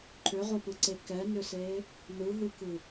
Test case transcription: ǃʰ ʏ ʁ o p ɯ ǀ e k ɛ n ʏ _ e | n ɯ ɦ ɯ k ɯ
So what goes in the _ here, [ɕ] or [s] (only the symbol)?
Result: s